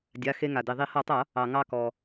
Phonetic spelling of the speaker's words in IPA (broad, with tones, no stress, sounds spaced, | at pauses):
dʲ a˩˧˩ x e˧ ŋ a˩ d i˩ ðˤ i˧˩˧ h ɔ˧˩˧ tˤ ʌ˧˩˧ | ɑ˩ ŋ ɑ˧ k ɔ˩